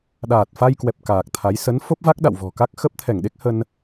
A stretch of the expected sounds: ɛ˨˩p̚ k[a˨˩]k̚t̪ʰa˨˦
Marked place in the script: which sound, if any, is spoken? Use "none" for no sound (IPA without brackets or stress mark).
aː˨˩